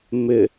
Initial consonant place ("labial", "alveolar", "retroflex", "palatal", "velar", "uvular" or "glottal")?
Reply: labial